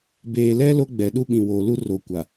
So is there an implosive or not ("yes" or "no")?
yes